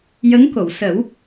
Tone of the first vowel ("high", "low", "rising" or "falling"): rising